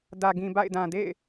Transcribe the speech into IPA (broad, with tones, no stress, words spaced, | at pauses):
dä˨ɡĩ˨ba̰˦˨ɪ̯ dã˨dḛ˦˨ɪ̯